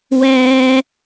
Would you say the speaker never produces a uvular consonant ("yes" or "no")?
yes